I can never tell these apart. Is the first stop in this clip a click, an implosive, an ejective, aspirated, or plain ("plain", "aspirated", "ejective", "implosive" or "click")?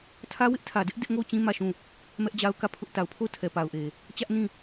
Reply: aspirated